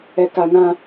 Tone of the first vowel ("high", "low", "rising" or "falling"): low